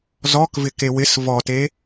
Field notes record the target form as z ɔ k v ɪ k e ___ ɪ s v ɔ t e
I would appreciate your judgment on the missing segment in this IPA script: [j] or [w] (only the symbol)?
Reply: w